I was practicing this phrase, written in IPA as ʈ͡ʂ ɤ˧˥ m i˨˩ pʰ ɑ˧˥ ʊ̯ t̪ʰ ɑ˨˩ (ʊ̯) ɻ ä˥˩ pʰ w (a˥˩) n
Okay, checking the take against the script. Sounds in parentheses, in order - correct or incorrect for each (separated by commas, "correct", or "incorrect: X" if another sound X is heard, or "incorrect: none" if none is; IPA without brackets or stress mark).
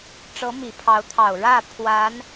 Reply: correct, incorrect: a˧˥